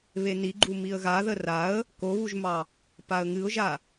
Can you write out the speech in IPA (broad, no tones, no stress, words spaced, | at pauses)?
βeniɡ͡ǃu miə̯ɣaðə raə̯ | koβuʒmɑ | paə̯ŋɨʊ̯ʒa